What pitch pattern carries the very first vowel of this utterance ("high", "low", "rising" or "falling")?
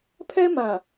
high